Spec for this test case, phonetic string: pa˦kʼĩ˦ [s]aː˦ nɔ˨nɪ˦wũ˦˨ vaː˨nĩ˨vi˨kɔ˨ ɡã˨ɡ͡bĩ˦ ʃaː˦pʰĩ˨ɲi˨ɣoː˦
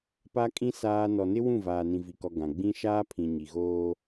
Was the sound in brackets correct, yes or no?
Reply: yes